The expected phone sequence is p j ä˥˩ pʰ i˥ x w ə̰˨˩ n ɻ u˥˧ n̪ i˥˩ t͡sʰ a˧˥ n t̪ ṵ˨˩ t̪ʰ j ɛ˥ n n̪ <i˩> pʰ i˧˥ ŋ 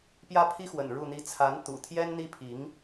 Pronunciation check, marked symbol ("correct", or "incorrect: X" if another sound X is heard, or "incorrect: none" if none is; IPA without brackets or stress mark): incorrect: i˥